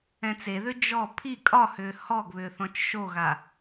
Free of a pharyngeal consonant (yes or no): yes